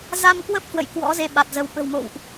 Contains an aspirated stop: no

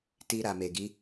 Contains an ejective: no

